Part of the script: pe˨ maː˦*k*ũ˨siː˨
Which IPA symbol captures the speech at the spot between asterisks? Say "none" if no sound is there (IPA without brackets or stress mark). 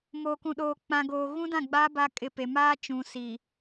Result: t͡ʃ